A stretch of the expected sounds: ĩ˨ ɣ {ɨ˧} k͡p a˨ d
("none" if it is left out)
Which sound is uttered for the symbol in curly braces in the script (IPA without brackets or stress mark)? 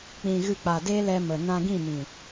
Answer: ɨ˧